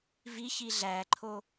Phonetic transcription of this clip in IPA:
v i ç i ɮ æ ǃʰ o

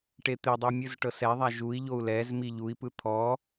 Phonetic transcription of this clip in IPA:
ʈ e t̪ e dˤ ɯ mʲ ɯ z ʈ ɤ s ɛ ðˤ a ʒ u i̯ ʎ o u̯ l ɛ z m i ʎ u i̯ p ɯ t̪ʰ ɔ

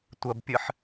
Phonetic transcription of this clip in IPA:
tʷ ɐ b pʲ ɨ ħ

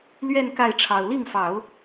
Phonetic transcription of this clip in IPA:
l ɥ ɛ˥˧ n k a˥˩ ɪ̯ ʈ͡ʂʰ ɑ˨˩ ʊ̯ l i˥˩ ŋ f ɑ˨˩˦ ʊ̯

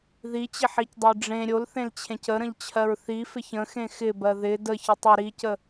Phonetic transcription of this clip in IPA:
ð i t͡ɕ ɪ ħ i c dˤ ʊ j ɖ͡ʐ ẽ ɾʲ o l θ ẽ l t͡ɕʰ ẽ c ə ɾ ə̃ ʎ t͡ɕʰ ɜ ɹ θ i f ɪ ç ə̃ x ẽ x ɪ b ɜ ð ɪ d ə ç ə tˤ ɪ ɾ i c ə

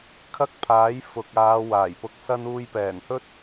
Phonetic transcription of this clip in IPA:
kʰ ɐ˥ k̚ pʰ aː˨˥ j f ʊ˨ k̚ aː˨˧ w aː˨˩ j p ʊ˧ k̚ s ɐ˥ n uː˧ j p ɛː˨˩ n h ɵ˥ t̚

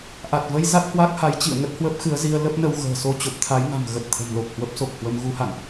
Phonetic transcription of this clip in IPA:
ʔ a˨˩ t̚ v ə˧ j z a˦˥ t̚ h w a˦˥ k̚ h a˨˦ j t͡ɕ ḭ˧˨ ə̯ ŋ ə˦˥ t̚ h w ə˦˥ p̚ x ɨ˨˦ ə̯ z i˧ ə̯ l ə˦˥ p̚ n ə˧ w ɣ ə̤ː˨˩ s o˧ t͡ɕ o˨˩ p̚ t̪ʰ a˨˦ j ŋ a̤˨˩ m ɣ ə˨˩ t̚ t̪ʰ ə̤˨˩ m l o˨˩ k̚ h w ə˦˥ p̚ s o˨˩ k̚ h w ə˧ m ɣ u˨˦ h a̰˧˨ n ʔ

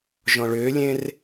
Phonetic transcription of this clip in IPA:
ʒ ɔ̃ ɭ ʏː lʲ ẽ r

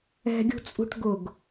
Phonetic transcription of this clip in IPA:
ɛ̤ ɡʲ ṳ t͡sʼ ṳ ʈ ɡ ʊ ɡ

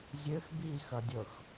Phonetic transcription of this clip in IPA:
zʲ ø x b i x ɐ dʲ ɤ x

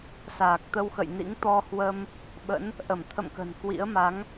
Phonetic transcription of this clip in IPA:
s aː˨˩ k̚ t̪ ə˧ w x ə̰˧˨ j n ḭ˧˥ ŋ t̪ ɔ˧ h w ə˧ m | ɓ ə̰˧˥ n | ʔ ə˧˩ m t̪ʰ ə̰˧˨ m k ə̤˨˩ n k w ḭ˧˥ ə̯ m a˨˦ ŋ

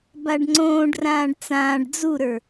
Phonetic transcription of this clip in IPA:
b a ɖ ŋ͡ǀ õː ɖ r ãː ɖ t͡s ãː ɖ d͡z u ɾ ə˞

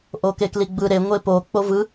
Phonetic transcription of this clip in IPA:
ʔ o k e k l i ɡ͡b ɯ ɾ e ŋʷ e p o k͡p o v ɯ

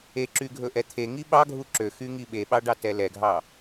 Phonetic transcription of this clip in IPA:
e ǁ y ɡʱ ɵ ʔ ɛ t̪ʰ e ŋ i ɓ ɑ ɡʱ u ǁ ø x y ŋ i ɓ e ɓ ɑ ɖ ɑ t ɛ l ɛ ɡʱ ɑ

